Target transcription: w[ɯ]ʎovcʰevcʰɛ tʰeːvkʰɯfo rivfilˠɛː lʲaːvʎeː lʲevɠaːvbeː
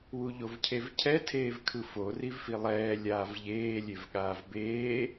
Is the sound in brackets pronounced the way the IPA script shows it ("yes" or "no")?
no